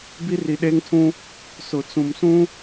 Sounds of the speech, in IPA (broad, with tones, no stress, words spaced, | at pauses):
bi˦ri˨ɗeː˦ŋtʰũ˦ | sʊ˨t͡sũ˨msũ˦